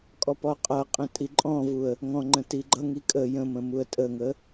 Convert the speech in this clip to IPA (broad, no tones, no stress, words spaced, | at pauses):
kʼɔpɔqʼʌqʼə̃ tʼiǃʼɔ̃vuə̯ | ŋɔ̃ŋ͡ǃə̃ tiɡ͡ǃʌŋi kʼə jə̃mə̃ muə̯tʼəŋə